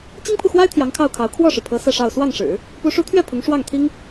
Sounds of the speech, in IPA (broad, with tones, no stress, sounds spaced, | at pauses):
t͡ɕ i˥ ŋ pʰ u˨ x w a˥ ɪ̯ t̪ʰ j ɑ˧˥ ŋ kʰ ɑ˥˩ ʊ̯ kʰ ɑ˧˥ ʊ̯ kʰ w ɔ˥˩ ʂ ɻ̩˩ pʰ ɤ˧˥ s ɤ˥˧ ʂ ɑ˥˧ ʊ̯ s w ɑ˥˩ ŋ ʂ ɻ̩˨˩˦ | p u˧˥ ʂ u˧˥ t̪ʰ ɥ ɛ˥˩ pʰ ʊ˧˥ ŋ ʂ w ɑ˥˩ ŋ t̪ʰ i˥ ŋ